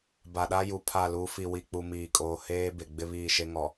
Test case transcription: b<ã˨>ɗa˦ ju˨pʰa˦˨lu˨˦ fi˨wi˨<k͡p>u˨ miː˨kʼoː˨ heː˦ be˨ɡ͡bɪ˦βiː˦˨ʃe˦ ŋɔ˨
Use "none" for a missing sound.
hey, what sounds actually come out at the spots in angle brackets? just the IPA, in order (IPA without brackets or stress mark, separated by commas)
a˨, k͡p